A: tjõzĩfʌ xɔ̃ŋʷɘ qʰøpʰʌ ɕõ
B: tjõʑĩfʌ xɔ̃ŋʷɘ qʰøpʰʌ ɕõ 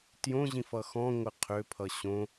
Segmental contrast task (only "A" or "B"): B